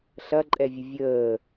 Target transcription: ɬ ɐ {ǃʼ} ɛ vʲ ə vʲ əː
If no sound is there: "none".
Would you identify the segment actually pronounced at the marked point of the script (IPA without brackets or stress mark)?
ǃʼ